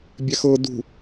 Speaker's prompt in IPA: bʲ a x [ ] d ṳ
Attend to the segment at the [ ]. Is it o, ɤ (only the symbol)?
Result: ɤ